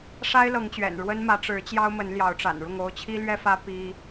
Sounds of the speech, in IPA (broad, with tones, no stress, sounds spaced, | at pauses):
ʂ a˦ ɪ̯ l ɤ˨˦ ŋ t͡ɕ ɥ ɛ̰˨˩ n ɻ w ə˦ n m ä˨˦ ʈ͡ʂ ɻ̩˨˦ t͡ɕ j ɑ˦ ʊ̯ m ə˨˦ n l j ɑ˨˦ ʊ̯ ʈ͡ʂ a̰˨˩ n ɻ ʊ˥˨ ŋ o˥˨ ʊ̯ t͡ɕʰ i˦ l ɥ ɛ˦ f ä˦ p i˦